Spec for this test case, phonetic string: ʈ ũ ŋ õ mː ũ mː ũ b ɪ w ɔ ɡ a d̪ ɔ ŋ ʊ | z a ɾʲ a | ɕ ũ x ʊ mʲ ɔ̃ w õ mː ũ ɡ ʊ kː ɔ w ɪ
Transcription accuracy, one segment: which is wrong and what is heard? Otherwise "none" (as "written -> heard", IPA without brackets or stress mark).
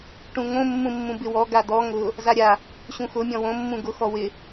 kː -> x